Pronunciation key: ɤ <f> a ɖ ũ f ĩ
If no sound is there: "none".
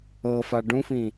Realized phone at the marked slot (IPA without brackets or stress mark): f